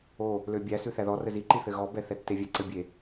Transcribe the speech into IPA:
o | l ø bʲ æ s ʉ θ æ ð ɔ r ɘ z i ǃ i θ ɘ ɣ ɔ b ɛ θ ɛ tː e vʲ ɛ ǀ ɘ bʲ e

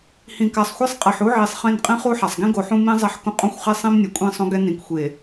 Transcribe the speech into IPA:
h ĩ˨ k a˨ sˤ xʷ ɛ˦ sˤ qʼ e˨ ħ u˦ ʕ i˨ sˤ χ ĩ˦˨ n qʼ ĩ˦ χ u˦ ħ a˨ sˤ ɡ ĩ˦ ɡ o˨ ħ ũ˦ m ĩ˦ zˤ ɛ˦ ħ k ũ˦ qʼ õ˦ xʷ χ e˦ sˤ ĩ˦ m nʲ ɛ˨ kʷʼ ĩ˦˨ sˤ õ˦ ɡ ɛ˦ n ĩ˨ k xʷ e˨

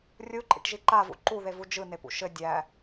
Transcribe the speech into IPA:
rʲ u ǃʼ ḭ ʈ ʒ i ǃ a v ṵ ǃ u ð e v u d͡ʒ ɯ n e p ṵ ʃ ɘ dʲ æ

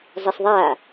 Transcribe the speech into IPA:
zˤ e s ðˤ a

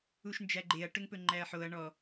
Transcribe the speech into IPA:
u ʃ n d͡ʒ æ ɡ͡ǃ e ɐ̯ ʈ ɵ ŋ p ɵ ŋ͡ǃ æ ɐ̯ ħ o ɐ̯ ɳ ɔ

